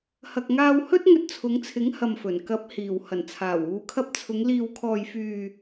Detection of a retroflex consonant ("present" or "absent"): absent